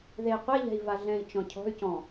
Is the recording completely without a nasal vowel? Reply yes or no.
no